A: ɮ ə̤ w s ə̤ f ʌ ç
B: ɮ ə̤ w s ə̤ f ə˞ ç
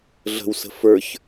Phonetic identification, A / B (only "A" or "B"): B